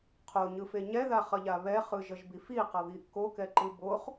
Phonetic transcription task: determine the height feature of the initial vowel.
mid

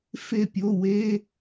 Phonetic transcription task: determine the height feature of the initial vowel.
mid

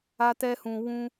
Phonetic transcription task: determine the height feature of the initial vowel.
low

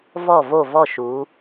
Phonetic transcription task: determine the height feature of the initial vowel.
mid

